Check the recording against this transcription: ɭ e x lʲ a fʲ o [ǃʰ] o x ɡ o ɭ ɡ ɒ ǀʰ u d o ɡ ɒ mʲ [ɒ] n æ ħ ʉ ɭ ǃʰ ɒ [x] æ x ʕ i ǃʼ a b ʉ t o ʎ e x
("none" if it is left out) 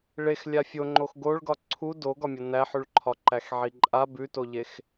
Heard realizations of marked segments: ŋ͡ǃ, ɒ, ǃ

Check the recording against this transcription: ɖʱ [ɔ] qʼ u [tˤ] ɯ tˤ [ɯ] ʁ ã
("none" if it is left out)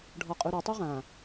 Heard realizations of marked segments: ɔ, ɾ, u

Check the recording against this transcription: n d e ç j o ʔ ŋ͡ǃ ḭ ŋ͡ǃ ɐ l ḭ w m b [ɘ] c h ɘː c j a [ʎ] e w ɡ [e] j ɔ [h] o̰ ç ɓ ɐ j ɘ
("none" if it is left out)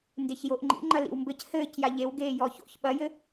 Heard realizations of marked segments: ɘ, ʎ, eː, ç

